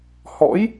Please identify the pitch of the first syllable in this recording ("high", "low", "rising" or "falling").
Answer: rising